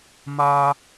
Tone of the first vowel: high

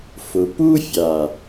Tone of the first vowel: low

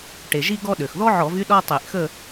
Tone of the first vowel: low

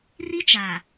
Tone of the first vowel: high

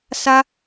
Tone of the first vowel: high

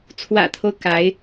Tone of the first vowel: low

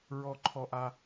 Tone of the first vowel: high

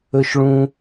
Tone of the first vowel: high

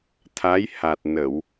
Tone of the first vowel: rising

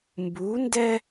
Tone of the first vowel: rising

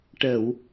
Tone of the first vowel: low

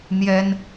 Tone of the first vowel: high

